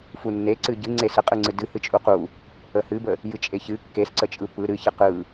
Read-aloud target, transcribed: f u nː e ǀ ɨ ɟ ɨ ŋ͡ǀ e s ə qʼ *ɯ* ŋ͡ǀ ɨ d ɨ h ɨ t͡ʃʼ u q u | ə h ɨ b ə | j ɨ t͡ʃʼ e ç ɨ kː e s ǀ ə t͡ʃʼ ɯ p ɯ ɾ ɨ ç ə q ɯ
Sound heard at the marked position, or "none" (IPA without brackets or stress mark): ɯ